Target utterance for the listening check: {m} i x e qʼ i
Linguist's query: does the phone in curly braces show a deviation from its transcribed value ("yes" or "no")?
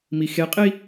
no